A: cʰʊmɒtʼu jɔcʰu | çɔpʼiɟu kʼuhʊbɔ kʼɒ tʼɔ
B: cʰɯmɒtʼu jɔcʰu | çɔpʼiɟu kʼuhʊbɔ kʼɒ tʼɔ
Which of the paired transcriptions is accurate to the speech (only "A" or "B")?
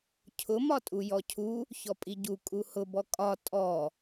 A